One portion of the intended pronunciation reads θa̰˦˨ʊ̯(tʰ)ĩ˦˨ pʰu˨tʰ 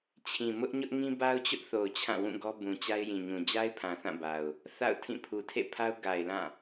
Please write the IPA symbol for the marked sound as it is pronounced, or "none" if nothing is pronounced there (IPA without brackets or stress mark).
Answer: tʰ